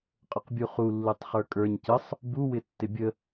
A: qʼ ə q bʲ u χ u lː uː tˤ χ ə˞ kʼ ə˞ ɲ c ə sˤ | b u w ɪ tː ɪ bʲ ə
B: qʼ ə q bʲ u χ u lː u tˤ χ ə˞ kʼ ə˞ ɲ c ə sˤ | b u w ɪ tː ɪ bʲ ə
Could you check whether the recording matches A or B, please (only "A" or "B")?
B